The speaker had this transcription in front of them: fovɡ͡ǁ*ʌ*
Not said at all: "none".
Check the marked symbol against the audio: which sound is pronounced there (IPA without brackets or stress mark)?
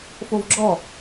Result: ɔ